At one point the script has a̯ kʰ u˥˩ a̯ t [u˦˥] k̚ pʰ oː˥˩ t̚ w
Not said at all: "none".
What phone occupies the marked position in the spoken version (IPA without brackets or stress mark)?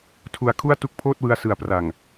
u˦˥